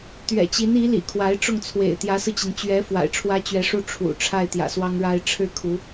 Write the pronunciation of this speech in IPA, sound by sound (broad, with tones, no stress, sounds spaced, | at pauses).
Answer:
t̪ ɥ ɛ̰˨˩ t͡ɕ i˧˥ n i˧˥ l ḭ˨˩ kʰ w a˧˥ ɪ̯ ʈ͡ʂ ʊ˥˩ ŋ t͡sʰ w ḛ˨˩ ɪ̯ t̪ j ä˧˥ s ɹ̩˧ t͡ɕ i˩ n t͡ɕ ɥ ɛ˧˥ f w a̰˨˩ ɪ̯ ʈ͡ʂʰ w ä˥ t͡ɕ ɥ ɛ˧˥ ʂ u˥˩ ʈ͡ʂʰ ṵ˨˩ ʈ͡ʂʰ a˥˩ ɪ̯ t̪ j ä̰˨˩ s w ɑ˥ ŋ ɻ a˥ ɪ̯ ʈ͡ʂʰ ɻ̩˥˩ kʰ u˧˥